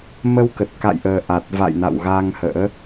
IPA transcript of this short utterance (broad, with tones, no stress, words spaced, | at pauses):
mə˧wkə˨˩t̚ka̰˧˨jʔəː˨˩ ʔa˨˩t̚ va̰˧˨jna̰˧˨wɣa˧ŋhə̰ː˧˥